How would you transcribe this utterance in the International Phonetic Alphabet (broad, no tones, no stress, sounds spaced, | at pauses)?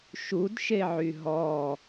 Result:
ʃ u d ʃ e ʕ y ɦ ɔ